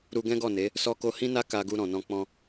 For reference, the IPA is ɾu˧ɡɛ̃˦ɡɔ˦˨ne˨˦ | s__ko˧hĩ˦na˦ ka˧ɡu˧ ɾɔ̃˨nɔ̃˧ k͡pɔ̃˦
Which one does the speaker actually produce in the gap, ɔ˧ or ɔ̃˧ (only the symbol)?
ɔ˧